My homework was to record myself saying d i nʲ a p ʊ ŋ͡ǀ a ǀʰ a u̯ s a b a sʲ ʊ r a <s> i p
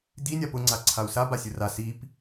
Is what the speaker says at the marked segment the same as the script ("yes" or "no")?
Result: yes